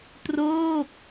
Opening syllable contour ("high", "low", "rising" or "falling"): falling